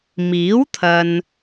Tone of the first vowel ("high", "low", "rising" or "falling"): rising